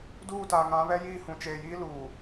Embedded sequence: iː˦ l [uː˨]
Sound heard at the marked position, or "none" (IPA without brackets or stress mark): uː˨